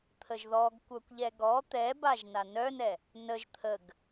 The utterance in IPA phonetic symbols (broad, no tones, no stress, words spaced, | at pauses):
t̪ʰəʒðɔɡ kʷœkʷʎɛɡɔ t̪ɛbaʒ nanœnɛ | nəʒ t̪ʰəɡ